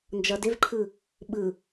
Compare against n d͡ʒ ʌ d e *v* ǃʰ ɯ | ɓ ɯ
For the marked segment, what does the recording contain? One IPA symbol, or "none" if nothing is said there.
v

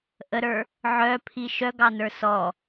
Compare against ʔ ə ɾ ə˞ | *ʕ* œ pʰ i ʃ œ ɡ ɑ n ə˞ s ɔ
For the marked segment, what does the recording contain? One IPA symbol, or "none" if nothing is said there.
ʕ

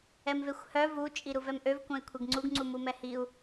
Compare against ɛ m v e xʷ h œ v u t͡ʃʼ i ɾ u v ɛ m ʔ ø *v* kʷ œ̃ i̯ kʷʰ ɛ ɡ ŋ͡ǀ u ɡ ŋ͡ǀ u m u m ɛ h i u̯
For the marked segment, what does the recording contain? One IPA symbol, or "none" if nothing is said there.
v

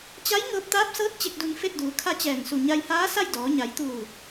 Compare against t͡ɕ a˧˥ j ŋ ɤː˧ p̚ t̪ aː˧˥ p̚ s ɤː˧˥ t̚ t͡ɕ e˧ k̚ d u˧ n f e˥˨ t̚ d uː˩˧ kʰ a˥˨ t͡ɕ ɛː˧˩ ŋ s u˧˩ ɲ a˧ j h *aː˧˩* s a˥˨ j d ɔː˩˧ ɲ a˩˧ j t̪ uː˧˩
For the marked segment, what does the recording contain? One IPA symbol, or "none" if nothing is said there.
aː˧˥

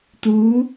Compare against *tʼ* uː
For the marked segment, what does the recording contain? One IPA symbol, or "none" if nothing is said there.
t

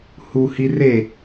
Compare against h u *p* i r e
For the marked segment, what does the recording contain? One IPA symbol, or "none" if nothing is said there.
h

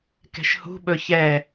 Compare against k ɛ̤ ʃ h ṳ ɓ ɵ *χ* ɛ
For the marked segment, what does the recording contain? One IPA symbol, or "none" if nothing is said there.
ç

